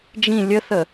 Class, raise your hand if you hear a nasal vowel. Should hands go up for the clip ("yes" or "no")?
yes